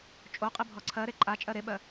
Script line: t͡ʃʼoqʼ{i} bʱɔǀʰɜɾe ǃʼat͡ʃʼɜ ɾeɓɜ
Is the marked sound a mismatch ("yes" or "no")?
no